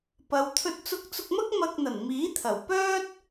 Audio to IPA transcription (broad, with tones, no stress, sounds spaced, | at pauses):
p ɐ˨˧ w t̪ʰ ɵ˧ t̚ t͡s ʊ˧ k̚ t͡s ʊ˧ k̚ m ɐ˥ k̚ m ɐ˧ k̚ n̪ ɐ˨˩ n m iː˨˥ t̪ʰ ɐ˨˩ w p œː˥ t̚